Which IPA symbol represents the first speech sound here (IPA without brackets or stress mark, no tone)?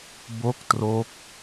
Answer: b